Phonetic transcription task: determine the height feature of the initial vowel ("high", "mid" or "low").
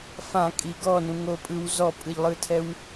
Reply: low